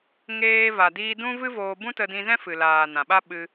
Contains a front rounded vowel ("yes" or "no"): no